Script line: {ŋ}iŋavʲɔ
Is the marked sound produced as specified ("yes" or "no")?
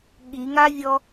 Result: no